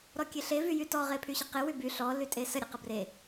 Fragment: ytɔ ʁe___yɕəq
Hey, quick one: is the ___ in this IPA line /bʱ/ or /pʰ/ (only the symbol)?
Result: pʰ